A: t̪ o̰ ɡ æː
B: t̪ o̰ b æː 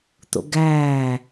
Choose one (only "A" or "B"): A